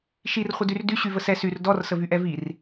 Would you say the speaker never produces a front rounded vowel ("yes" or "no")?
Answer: no